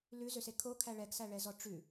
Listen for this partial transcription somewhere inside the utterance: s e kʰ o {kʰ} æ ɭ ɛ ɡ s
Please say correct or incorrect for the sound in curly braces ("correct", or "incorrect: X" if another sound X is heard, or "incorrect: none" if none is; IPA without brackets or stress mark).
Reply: correct